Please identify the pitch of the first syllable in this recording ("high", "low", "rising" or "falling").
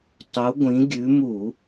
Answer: rising